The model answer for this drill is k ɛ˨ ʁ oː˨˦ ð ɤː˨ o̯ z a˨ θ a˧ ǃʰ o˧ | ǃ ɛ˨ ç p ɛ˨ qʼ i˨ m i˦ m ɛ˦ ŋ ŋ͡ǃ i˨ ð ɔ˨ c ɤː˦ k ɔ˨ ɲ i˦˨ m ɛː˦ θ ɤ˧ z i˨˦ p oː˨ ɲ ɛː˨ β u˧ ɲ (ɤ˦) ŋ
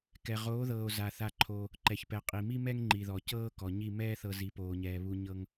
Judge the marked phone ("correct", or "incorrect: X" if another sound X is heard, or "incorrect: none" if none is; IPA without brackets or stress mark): correct